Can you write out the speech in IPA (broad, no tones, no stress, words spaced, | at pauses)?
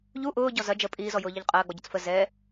ʎu ʔʊːɟɔ zɐ d͡ʒə pʼiːzɔjʊːʎɐʎ qʼɐːɡ͡bɔɟʊt͡s fə zɛ